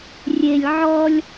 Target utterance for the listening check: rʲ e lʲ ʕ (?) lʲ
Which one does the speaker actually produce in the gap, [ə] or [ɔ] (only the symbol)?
ɔ